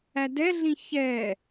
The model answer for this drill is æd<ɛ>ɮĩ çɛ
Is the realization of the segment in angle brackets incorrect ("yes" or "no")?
no